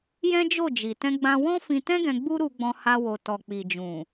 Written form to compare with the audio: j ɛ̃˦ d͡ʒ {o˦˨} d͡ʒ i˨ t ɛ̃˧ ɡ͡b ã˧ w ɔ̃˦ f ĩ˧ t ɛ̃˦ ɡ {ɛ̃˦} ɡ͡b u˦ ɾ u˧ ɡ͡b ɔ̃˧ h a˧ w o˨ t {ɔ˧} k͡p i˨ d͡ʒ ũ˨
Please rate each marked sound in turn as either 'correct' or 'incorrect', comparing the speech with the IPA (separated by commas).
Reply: correct, incorrect, incorrect